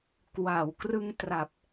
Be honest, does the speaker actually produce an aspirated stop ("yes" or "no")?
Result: no